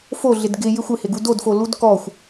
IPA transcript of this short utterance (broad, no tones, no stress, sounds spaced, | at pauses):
f o ɮ ɪ d ɡ ɪ j ɪ xʷ ɪ h ɪ ɡ u d o d f o l u d k ɔ xʷ